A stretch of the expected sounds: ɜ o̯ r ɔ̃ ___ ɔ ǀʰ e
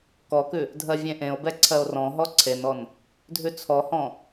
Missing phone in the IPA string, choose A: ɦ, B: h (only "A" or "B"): A